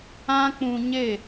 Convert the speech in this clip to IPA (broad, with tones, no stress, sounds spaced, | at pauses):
ã˦ k͡p ũ˧ ɲ e˦˨